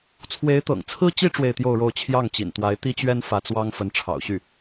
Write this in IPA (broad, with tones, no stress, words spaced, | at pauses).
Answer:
t͡sʰwe˧˥ɪ̯t̪ɤ̰˨˩ŋt͡sʰɹ̩˥t͡ɕi˥ ʈ͡ʂwe˥˧ɪ̯t̪jo˥˧ʊ̯ɻo˥˧ʊ̯ t͡ɕʰjɑ˥˩ŋt͡ɕḭ˨˩nt̪wa˧˥ɪ̯ t̪i˥t͡ɕɥɛ˥n fä˧˥t͡swɑ˥ŋ fə˧˥nʈ͡ʂʰɑ̰˨˩ʊ̯ɕy˥˩